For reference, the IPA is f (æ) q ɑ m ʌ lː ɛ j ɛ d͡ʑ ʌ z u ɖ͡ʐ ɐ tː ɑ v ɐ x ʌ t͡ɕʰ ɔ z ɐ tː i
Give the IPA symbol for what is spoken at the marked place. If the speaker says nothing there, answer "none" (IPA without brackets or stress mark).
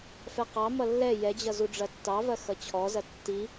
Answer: ɛ